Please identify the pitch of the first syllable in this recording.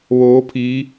rising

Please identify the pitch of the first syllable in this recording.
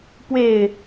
low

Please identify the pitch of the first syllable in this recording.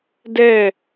falling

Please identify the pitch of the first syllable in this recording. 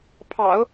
low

